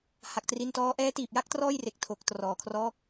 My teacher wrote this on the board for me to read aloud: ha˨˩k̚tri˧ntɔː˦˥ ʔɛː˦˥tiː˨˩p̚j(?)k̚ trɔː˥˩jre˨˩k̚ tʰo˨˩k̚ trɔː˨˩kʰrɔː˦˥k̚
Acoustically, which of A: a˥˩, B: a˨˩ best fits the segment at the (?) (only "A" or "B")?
A